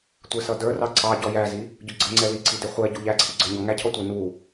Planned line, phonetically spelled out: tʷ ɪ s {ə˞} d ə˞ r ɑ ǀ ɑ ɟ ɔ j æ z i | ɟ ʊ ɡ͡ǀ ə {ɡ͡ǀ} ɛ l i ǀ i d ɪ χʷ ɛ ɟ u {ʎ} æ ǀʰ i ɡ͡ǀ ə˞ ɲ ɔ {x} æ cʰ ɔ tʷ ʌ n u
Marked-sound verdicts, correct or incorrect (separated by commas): incorrect, incorrect, correct, incorrect